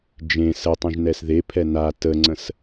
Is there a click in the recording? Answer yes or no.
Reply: yes